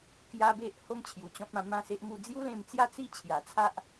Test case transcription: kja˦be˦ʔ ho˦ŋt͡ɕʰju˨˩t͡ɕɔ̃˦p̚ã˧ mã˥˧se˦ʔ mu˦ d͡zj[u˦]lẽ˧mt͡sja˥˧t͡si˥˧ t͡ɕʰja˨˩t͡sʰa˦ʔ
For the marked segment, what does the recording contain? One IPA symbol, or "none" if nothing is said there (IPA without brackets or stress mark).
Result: u˦